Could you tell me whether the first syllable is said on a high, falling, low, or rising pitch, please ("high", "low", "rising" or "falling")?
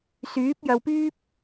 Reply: rising